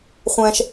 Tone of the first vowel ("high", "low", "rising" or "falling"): low